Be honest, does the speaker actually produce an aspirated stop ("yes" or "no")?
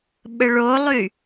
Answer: no